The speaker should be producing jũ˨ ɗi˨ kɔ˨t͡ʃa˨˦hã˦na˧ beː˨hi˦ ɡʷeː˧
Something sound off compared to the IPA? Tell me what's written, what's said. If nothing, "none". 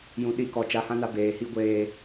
none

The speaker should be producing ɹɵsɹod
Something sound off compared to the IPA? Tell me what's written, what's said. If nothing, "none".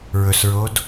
none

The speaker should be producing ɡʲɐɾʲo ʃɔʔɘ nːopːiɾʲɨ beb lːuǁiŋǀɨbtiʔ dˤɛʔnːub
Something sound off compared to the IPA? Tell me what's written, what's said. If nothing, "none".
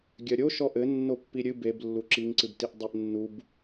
none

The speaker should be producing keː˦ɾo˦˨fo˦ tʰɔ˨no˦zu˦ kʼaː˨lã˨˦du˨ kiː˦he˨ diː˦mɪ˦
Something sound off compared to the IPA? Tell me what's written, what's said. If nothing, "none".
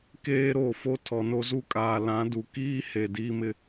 none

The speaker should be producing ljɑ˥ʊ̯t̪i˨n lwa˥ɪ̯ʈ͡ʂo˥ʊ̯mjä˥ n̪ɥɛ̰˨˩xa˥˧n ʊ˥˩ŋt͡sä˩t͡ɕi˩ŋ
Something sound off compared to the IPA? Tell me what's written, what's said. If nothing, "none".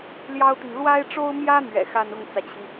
none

